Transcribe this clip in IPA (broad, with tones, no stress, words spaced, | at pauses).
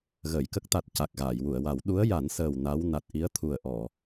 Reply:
ɣəː˨˩˨jkə˦˥k̚t̪a˨˩t̚ ca˨˩k̚ɣaː˨˩˨jwu˨˩˨ə̯wa˨˩˦w ɗu˧˥ə̯ja˨˩˦nsəː˨˩w na˧˥w na˨˩t̚ʔi˧˥ə̯ t̪ʰu˨˩ə̯ ʔɔ˨˩˨